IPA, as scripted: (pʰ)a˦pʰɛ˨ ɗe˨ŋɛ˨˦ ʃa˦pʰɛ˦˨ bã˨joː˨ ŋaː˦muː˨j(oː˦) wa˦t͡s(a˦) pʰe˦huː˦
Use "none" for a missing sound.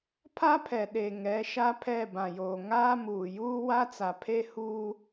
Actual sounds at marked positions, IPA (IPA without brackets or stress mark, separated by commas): pʰ, uː˦, a˨